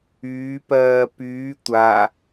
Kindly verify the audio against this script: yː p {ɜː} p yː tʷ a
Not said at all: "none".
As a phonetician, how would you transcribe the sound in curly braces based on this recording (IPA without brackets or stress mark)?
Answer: ɜː